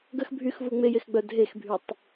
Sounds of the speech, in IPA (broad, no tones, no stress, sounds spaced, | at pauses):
ɡ ə x bʱ y x v u ŋ͡m e j e x ɡ͡b œ dʱ e x bʱ y tˤ